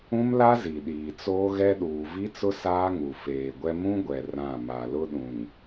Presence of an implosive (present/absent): present